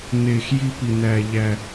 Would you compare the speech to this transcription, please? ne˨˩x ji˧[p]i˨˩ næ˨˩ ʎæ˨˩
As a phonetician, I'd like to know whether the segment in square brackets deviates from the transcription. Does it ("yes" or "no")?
no